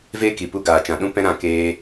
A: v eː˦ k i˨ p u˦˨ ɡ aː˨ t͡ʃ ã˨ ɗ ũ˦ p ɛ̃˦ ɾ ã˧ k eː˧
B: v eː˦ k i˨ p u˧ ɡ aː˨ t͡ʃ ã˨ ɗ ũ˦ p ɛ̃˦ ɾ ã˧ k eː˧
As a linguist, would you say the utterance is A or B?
B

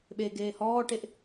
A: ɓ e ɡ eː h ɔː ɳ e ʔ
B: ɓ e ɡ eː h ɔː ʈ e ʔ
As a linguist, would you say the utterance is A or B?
B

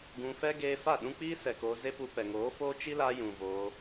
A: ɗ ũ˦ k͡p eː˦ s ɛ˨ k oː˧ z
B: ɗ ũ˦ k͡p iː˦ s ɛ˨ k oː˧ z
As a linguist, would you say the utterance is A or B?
B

